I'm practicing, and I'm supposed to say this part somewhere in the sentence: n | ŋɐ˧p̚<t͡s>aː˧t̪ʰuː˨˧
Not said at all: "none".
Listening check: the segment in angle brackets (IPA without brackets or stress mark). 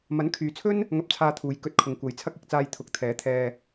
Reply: t͡sʰ